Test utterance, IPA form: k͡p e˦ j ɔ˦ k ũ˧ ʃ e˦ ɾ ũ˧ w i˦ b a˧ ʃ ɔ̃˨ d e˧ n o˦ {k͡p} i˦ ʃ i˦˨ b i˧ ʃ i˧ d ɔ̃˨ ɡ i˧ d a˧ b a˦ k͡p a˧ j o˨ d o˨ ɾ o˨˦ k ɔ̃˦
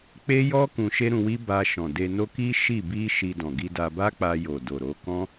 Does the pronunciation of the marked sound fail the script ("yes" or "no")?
yes